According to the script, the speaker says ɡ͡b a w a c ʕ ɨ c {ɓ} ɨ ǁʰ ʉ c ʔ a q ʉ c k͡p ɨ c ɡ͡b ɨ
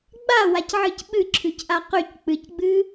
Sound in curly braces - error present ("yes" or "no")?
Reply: no